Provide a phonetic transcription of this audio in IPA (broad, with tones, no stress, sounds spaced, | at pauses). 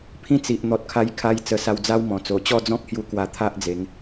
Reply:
pʰ ĩ˦ t͡s i˨ ʔ n̪ ɔ˨ t̚ kʰ a˧ j kʰ a˧ j t͡s ə˧ s a˧ w d͡z a˦ w m ɔ̃˨˩ t͡s o˨˩ t͡ɕ ɔ˥˧ d͡z ɔ̃˦ k̚ h j u˧ k w a˧ t̪ʰ a˦ ʔ d͡z e˨˦ ŋ